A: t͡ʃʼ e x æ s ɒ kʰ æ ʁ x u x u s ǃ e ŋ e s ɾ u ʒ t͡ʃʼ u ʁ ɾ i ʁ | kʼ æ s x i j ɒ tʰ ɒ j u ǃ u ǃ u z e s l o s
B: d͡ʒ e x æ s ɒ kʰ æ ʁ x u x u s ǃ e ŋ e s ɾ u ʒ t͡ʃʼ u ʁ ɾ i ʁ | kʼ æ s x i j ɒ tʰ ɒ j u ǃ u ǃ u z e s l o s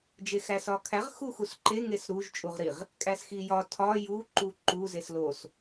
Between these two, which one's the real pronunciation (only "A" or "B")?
B